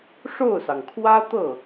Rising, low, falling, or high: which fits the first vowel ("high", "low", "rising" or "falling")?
falling